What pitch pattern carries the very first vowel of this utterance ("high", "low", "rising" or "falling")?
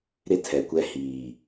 high